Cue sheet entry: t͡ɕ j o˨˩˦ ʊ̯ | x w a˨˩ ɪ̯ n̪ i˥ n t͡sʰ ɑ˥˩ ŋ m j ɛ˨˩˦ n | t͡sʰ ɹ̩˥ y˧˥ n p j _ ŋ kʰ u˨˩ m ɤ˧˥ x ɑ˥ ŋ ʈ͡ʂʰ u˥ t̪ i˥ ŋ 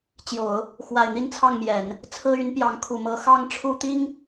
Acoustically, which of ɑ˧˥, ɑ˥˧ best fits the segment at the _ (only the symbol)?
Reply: ɑ˧˥